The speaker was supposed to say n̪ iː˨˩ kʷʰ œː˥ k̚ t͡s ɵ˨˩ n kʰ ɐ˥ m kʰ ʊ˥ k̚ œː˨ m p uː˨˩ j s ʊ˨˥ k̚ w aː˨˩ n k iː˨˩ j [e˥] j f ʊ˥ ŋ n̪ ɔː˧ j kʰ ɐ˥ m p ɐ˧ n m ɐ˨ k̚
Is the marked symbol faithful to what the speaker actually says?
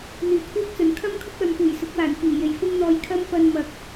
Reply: no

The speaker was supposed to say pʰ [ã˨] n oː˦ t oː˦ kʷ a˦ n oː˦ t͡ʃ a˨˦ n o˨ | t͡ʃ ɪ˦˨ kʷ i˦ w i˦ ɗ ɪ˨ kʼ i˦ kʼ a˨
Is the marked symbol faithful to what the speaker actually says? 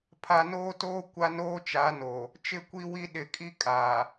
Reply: no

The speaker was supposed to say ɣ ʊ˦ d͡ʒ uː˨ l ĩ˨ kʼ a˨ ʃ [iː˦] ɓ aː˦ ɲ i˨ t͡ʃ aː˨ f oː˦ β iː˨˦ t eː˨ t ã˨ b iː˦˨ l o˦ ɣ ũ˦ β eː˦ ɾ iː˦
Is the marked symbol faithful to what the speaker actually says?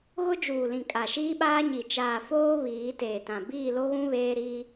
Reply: yes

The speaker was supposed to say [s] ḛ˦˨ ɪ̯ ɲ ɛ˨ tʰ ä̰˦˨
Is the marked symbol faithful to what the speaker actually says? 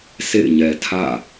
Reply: yes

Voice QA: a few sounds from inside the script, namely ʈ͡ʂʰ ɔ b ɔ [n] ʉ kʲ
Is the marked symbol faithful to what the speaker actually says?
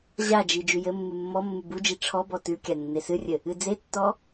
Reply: no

